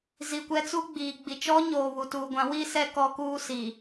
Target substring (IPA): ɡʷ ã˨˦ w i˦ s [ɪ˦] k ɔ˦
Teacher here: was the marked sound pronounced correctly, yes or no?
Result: no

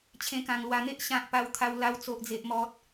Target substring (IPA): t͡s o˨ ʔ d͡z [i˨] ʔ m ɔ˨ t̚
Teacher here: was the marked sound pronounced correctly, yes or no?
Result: no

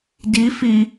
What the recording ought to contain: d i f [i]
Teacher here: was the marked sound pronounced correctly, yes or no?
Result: yes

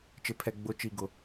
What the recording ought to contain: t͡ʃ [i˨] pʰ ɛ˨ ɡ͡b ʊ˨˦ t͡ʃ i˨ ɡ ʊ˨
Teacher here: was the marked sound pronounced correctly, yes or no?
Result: no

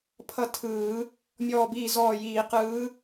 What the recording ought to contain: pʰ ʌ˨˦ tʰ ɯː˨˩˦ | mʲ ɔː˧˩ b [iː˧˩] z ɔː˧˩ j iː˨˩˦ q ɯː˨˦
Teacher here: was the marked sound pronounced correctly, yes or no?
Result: yes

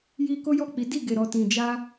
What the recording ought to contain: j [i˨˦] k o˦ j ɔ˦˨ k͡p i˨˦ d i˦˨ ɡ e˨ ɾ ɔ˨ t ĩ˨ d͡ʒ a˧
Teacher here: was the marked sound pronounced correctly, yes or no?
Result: no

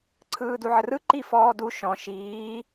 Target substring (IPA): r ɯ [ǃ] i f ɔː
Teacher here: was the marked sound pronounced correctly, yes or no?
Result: yes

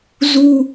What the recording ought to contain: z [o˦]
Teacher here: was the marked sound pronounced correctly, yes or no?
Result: no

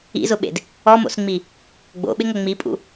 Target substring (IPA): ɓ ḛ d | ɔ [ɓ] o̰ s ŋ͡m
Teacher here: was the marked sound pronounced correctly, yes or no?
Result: no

